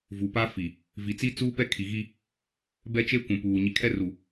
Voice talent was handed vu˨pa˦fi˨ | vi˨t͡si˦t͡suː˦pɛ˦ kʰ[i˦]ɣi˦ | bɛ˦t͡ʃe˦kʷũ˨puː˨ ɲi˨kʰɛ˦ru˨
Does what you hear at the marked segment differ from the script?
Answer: yes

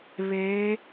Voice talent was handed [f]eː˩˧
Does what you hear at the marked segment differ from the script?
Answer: yes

